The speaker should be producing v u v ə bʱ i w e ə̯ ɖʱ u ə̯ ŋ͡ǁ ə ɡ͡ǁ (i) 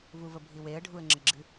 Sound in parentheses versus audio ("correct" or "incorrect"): incorrect